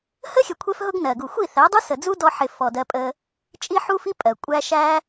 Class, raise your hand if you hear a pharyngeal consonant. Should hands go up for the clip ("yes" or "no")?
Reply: yes